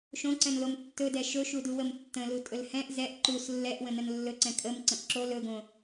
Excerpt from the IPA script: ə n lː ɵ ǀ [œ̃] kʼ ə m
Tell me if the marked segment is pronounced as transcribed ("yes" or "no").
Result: no